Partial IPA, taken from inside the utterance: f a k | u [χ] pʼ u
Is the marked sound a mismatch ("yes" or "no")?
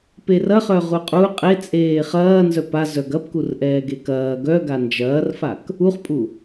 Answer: no